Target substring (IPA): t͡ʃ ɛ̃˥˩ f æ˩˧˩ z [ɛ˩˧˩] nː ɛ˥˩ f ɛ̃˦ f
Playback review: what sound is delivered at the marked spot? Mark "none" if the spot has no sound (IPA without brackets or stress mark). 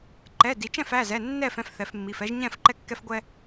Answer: ɛ˩˧˩